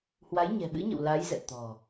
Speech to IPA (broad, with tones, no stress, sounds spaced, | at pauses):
h w a˨˦ j ɲ ɛ̤˨˩ ɓ ɨ̰˧˥ ɲ ə̰˧˨ w l a˨˦ j z ɛ̰˧˨ t̪ ɔ̤˨˩